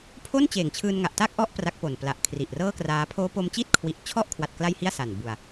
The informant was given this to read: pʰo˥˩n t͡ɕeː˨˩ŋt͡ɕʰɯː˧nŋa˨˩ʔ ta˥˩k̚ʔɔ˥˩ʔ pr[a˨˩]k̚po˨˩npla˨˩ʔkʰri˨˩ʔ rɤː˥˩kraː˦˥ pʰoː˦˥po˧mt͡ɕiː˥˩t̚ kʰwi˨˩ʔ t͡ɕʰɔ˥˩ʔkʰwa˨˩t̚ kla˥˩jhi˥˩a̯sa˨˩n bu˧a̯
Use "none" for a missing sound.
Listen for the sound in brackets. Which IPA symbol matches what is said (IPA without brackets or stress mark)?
a˦˥